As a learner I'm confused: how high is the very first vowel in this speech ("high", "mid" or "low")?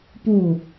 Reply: high